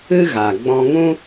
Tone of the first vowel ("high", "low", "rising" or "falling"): high